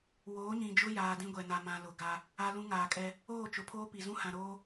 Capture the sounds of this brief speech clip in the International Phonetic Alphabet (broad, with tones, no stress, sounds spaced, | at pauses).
w oː˨˦ ɲ ĩ˨ d͡ʒ ʊ˦ j aː˨ d ĩ˦ ɡʷ ɛ˨ n a˨ m ã˨ l ʊ˨ ɡ a˦ | a˦ l ũ˦ ŋ aː˨ kʼ ɛ˦ | oː˦˨ t͡ʃ ʊ˨ pʰ oː˦ p i˨ z ũ˦ h ã˨ ɾ oː˦